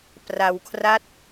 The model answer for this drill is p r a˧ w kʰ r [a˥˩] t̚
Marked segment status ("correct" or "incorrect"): correct